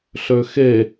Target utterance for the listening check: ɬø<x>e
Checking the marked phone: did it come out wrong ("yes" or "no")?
no